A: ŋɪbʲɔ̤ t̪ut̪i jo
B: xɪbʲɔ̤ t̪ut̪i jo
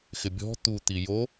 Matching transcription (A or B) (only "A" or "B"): B